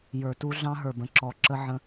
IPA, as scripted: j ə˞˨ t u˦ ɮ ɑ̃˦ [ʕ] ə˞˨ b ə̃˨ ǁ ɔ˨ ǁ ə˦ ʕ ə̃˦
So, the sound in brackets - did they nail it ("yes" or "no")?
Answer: no